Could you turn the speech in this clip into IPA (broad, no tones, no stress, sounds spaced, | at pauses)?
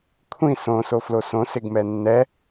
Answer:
kʷʰ ĩ s õ s o f l o s õ s ɪ ɡ m ɛ nː ɛ